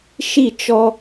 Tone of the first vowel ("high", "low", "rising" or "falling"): falling